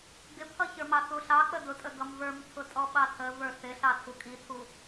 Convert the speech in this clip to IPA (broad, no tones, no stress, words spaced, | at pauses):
ɡɪpʰʌçə˞mɑ θuɬɑ k͡pədʊtʼə ɡʌmvə˞mtʰʊtʼɔ ɓɑtʰə və˞θɪɬɑ tʰukʼitʰu